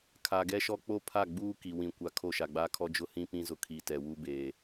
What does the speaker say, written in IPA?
kʰ a˨ ɡ ɛ˦ ʃ ɔ˦ k͡p o˦ pʰ a˦˨ ɡ͡b uː˦ k i˨ w ĩ˨ kʷ a˨ kʰ o˦˨ ʃ a˨ ɡ͡b aː˦ kʰ ɔ˦ d͡ʒ ʊ˦ h ĩ˦ p ĩ˦ z ʊ˨ kʰ i˨ t ɛ˨ w u˦ b eː˨

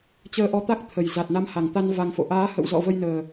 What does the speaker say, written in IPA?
t͡ɕ əː˧ ʔ ɔ˧ t̪ a˦˥ k̚ t̪ʰ ə˨˩ j z a˨˩ t̚ n a˧ m h a˨˩ ŋ t̪ a˧ n v a˧ ŋ f o̰˧˨ ʔ aː˨˦ h ə̰˧˨ w z ɔ̰˧˨ v ə˧ j n əː˨˩

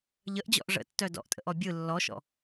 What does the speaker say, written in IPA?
ʎ ə ʔ d͡ʑ ɔ̰ ʔ ʐ ə̰ tː œ d ɔ̰ ʔ tʼ ə̰ ʔ ɔ bʲ ɯ lː ɔ ʃ ɔ̰

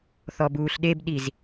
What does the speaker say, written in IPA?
θ ɔ b uː ɬ ɗ e b ɗ i z

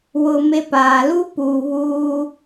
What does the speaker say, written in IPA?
w ʊ˨ m e˦ p aː˨ l u˦ p uː˨ β uː˦

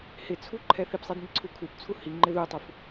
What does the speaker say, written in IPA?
h ɪ t͡sʰ u ǃʰ ɛ θ i p sˤ i d n ɪ ǀʰ u kʰ u p t͡sʰ u h i ŋ͡ǃ ɪ ð u tˤ u f

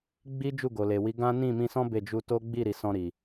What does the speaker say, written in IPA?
ɡ͡b i˦ d͡ʒ u˦˨ ɡ o˨ l e˨ w i˨˦ ɡ ã˦ n ĩ˦˨ m ĩ˧ s ɔ̃˦ b e˦˨ d͡ʒ u˧ t o˦ ɡ͡b i˦˨ ɾ i˨ s ɔ̃˧ ɾ i˨

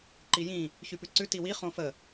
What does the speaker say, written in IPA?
ǃ i j ĩ | ç y p ʉ ǀ ʉ t i w i χ õ f ə

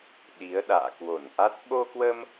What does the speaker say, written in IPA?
ɗ i˨˦ ə̯ ɗ a̰ː˧˨ k w o˧˩ n ʔ a˦˥ t̚ ɓ o˧ k w ə˧ m

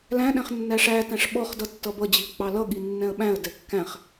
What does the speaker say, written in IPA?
l æ̃ ɗ ɛ̃ χ nː æ ʂ æ t æ̃ ʂ ɓ ɔ χ d ʌ tː ʌ b ʌ d͡ʑ i ə̯ k͡p ɑ l ʌ ɠ i nː ɛ̃ ə̯ ɓ æ̃ ə̯ d ɛ kː æ̃ χ

